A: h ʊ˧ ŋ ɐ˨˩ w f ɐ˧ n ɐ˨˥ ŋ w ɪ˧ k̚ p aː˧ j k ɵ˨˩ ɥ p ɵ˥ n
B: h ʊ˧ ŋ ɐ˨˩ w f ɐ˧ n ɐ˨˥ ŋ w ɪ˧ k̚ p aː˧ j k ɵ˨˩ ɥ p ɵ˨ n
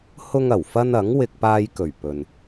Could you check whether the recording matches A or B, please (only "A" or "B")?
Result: B